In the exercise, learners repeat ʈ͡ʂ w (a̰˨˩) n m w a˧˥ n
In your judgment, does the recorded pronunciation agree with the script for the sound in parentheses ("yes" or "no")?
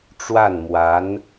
no